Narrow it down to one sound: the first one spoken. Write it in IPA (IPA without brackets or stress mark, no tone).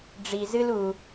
ɖ͡ʐ